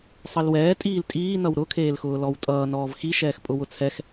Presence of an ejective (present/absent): present